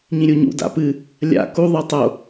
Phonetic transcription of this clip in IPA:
ɲĩɾʲuɲṵ da̰pɨ | lʲa̰ ku ðˤitˤo

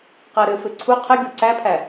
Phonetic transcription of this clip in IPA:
qæɾɘfɘ ǀʰu qʰɪ ɡʲoǀæpʰæ

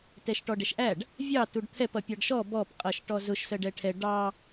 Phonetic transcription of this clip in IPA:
tɛʃʈɔɖɛʃʔæɖ | vʲɑ tuɖt̪ʰɛp ʌpʲɑɖʃɔ bɔp qʼʌʃ ʈɔzʊʃ sɜɖɛʈʰɛ ɖɑ

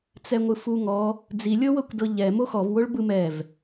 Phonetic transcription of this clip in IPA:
t͡sɛŋʷɯfuŋɔ | d͡zilʲɤwɤkʷdɤ ʎɛ moxɔvwoɭ bɯmɛv

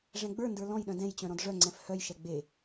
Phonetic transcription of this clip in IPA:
ʐɛ̃ɡ͡bə˞ndə˞ lɔ̃jɗœ̃ dɛ̃jt͡ɕœ̃ ɾɔ̃dʐœŋ͡ǀɛ̃f hœjʃɛ ɡ͡be

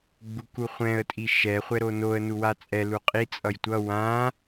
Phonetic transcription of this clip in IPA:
ɡ͡bukuχʷɛ̃ə̯tʼi ʃɛ χʷɛɾonoə̯ nuwat͡sʼɛ luqʼi t͡sʼʌjtʷʌ wã

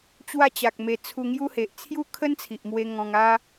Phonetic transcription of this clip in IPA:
t͡ɕwa˥˧t͡ɕa˨k̚me˧ t͡sʰu˧ŋju˦he˨ʔ t͡sʰju˦kʰə˦nt͡sʰi˨ʔmwe˧ ŋɔ̃˧ŋ a˦

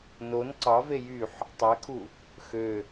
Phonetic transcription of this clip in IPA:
non ǀɑve jyħ | tˤɛkʰu | xø

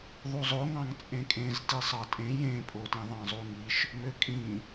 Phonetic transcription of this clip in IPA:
ðˤuzˤoŋɑ̃ŋ t͡sʼẽkʼẽz tisˤɑtʼẽ jẽpʼotĩ ðˤɑ̃zˤuŋiʃ | møkʼĩ

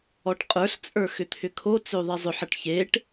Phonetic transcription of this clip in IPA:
ɔʈqʼə˞ɬt͡sʼə˞ xʏt̪ʰʏkʰot͡sʏu̯ ðˤizˤʏħɐʈ çeʈ

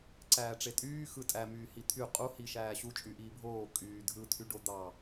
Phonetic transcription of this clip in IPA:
ǀæːʈ͡ʂetʼyː xɯtʼæ myːhit̪ʰy qʼu hiʃæːɕu t͡ʃʼyʔiːbʱoː kʼyːdʱɯt̪ʰy ɖod̪ɑ

